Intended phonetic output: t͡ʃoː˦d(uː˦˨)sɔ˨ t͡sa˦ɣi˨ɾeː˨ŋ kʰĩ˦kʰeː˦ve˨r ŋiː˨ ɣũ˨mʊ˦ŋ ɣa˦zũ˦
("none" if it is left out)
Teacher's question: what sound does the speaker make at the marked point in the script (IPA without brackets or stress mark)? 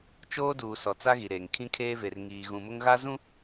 uː˨